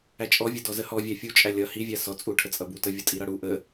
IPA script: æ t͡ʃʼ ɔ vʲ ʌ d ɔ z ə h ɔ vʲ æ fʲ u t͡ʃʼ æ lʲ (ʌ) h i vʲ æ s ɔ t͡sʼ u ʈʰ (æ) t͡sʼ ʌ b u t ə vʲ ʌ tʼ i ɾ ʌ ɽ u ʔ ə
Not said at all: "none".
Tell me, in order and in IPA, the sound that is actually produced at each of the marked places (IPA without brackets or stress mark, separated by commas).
ʌ, ə